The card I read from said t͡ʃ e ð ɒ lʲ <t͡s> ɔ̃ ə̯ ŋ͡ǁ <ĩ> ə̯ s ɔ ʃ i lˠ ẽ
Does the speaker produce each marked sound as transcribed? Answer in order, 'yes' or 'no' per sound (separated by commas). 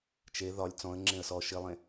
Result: yes, no